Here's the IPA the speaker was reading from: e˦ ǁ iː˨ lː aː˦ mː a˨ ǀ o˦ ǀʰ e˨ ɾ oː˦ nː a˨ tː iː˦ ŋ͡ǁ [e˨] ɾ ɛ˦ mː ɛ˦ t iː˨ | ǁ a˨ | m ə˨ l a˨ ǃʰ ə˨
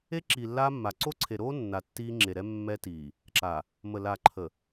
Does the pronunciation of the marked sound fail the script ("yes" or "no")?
no